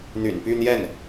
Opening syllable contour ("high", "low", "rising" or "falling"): low